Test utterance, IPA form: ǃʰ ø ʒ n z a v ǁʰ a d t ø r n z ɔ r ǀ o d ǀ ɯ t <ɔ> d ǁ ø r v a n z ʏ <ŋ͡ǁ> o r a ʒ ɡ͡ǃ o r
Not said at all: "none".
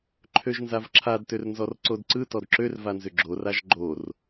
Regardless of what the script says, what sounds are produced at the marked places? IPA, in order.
ɔ, ɡ͡ǁ

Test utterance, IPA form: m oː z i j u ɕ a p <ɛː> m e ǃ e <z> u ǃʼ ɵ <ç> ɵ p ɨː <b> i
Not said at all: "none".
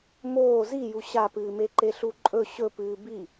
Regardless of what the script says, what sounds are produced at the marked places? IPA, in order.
ɨː, ɬ, ɕ, b

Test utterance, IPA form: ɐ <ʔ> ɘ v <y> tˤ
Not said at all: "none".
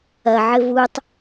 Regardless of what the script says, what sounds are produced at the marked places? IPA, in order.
ʕ, u

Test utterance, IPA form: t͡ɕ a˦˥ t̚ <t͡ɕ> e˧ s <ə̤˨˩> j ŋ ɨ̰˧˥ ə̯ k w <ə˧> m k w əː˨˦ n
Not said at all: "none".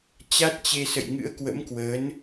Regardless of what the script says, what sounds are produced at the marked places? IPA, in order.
t͡ɕ, ə̰˧˨, ə̰˧˥

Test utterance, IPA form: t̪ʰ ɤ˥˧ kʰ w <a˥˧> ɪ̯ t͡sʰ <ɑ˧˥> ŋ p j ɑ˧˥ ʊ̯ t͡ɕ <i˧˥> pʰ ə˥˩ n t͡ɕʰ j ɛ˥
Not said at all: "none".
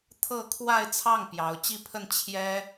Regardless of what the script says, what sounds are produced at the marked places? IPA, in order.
a˥˧, ɑ˥˩, i˥˧

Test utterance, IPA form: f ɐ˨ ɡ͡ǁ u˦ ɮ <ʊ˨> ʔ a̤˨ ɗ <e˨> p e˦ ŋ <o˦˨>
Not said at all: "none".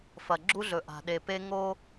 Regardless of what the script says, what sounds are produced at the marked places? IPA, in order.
ɵ˨, e˨, o˦

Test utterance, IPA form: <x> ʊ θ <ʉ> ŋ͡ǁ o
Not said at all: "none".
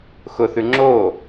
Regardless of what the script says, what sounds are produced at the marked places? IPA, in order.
x, ʉ

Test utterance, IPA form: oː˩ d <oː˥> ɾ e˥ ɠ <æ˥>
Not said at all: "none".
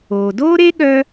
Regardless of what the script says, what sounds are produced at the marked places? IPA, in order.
oː˥, œ˥

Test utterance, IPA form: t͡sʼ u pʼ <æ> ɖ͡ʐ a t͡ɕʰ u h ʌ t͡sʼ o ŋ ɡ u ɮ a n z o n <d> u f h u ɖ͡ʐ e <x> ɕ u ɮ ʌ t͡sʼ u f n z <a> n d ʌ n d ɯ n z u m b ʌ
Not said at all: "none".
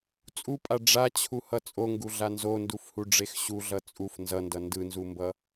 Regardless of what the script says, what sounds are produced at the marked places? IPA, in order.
a, d, x, ʌ

